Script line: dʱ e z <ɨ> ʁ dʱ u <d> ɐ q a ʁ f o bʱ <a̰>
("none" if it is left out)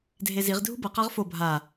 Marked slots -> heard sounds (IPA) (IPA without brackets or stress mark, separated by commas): i, b, a